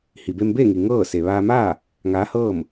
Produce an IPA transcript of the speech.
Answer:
hi˩be˧mbeː˥˨ŋi˩ ŋɤː˥˨ se˩ʋaː˧maː˥˨ | ŋaː˧˥hɤː˥˨m

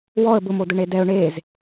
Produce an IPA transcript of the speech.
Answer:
wɔə̯ bʊmo dʊɳedɛʊ̯ ɳez

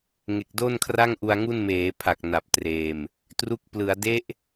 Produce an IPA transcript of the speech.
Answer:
ŋe˨˩k̚do˥˩nkʰra˥˩ŋ ʔu˧a̯ŋu˥˩n meː˩˦pʰa˨˩k̚ na˨˩p̚treː˨˩m | tru˦˥k̚plɯ˩˦a̯ de˦˥ʔ

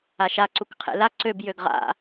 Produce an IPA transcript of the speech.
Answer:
aʃa ǀukqʰḛla ǀøb jøɡʁa̰

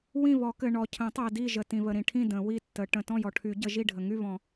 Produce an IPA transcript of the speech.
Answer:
wĩ˥˨βɔ˨˩˦kɘ˨ ɳɔ˨cʰə̃˨˩˦tˤɜ˨ di˥˨ʒə˨ tĩ˨βə˨ɾĩ˨ʈʰĩ˥˨ də̃˨˩˦wi˥˨tːə˨˩˦ ʈə̃˨ tɔ̃˥˨jɔ˨ʈʰy˨˩˦ ɟə˨˩˦ʒi˥˨ɖʱə˨ ŋy˥˨βɔ̃˨˩˦

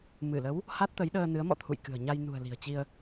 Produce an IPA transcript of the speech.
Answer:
mɨ˧˩lə˨˦w | ha˦˥t̚t̪ə˨˦jɗəː˧ nɨ˨˦ə̯mɔ̰˧˨t̪ʰṵ˧˨j kɨ̤˨˩ə̯ɲa˧j nṳ˨˩ə̯ li̤˨˩ə̯t͡ɕi˧ə̯

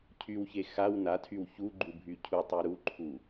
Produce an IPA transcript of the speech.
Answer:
cʰywçe xaw natʰyw çuɡ͡ǃubʱy cʰutˤy ɾuǃʰu

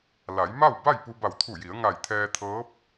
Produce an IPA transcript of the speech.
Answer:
la˩˧jma˥˨w ba˥˨jpu˧ ba˧˩wt̪ʰu˧˩ji˩˧ə̯ ŋa˧˩jt̪ʰɛː˧t̪ʰɤː˧˥p̚

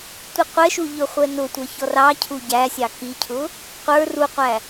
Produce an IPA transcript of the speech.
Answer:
tʷɪqʷɛʃu ʎʊχʷɛnʊtʷʌ çɔrɑcʰu ɟæsʲɑ kicʰʊ | qʷə˞ ruqʷæ

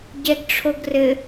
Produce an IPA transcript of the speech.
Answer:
ɟɛɡʈ͡ʂʰoɡrɘ

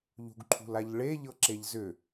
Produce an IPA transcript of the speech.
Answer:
ʎṳɡǃʰṳlaʎɭe ʎɤǁeʎzʏ

